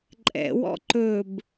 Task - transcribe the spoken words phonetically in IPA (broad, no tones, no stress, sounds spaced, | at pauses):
ǃʼ ɛ̰ w ɔ̰ ǃ ɵ b